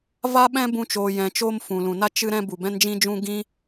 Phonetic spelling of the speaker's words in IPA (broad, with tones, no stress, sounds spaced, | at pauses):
v a˦ ɓ ɛ̃˦ b ũ˧ t͡ʃ oː˨ j ɛ̃˨ t͡ʃ oː˧ m f ũ˨ l ũ˨ n a˦ t͡ʃ ɨ˦ ɾ ɛ̃˦ b u˨ b ɛ̃˦ n d͡ʒ ĩ˦ d͡ʒ ũ˦ ɡ ĩ˦